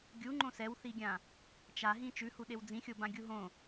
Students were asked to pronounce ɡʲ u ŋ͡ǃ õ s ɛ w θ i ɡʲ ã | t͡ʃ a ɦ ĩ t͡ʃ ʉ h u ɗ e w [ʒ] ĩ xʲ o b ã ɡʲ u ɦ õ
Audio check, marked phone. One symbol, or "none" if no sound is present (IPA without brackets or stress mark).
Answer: d͡z